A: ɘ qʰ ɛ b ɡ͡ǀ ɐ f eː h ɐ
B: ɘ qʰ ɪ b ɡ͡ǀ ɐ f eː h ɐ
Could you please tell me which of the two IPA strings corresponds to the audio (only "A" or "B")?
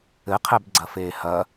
A